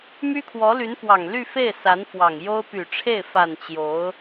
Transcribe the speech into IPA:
my˥kʰwɔ˧˥ly˧˥nfwɑ˨˩ŋ ly˥˧fe˥˩ɪ̯ sa˧˥nfwɑ˨˩ŋjo˥ʊ̯ py˨˩ʈ͡ʂʰe˥˩ɪ̯ fa˨˩n t͡ɕjo˧˥ʊ̯

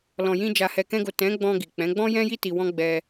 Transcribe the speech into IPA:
lɔ̃˨jĩ˧ d͡ʒa˨hɛ˨kɛ̃˧ɡo˨ tɛ̃˨˦ɡ͡bɔ̃˧ ɡi˨k͡pɛ̃˨˦ ɡ͡bɔ̃˦jɛ̃˦ji˦ ti˧wɔ̃˦ɡ͡bɛ˧

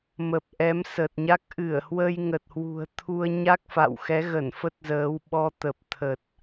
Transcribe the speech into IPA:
mə˨˩p̚ʔɛ˨˦msə˨˩t̚ɲa˦˥k̚ ʔɨ˧˩ə̯hwə˧jŋə˨˩t̚ hwṳ˨˩ə̯t̪ʰu˧ə̯ ɲa˦˥k̚fa̰˧˨wxɛ˨˦ɣə˧˩n fə˦˥t̚zəː˨˦wɓɔ˧t̪ə˨˩p̚ t̪ʰə˨˩t̚

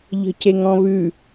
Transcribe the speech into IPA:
ʎə̤ceŋɔ̃βʉ

